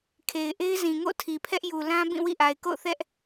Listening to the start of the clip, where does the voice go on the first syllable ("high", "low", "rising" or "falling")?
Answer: low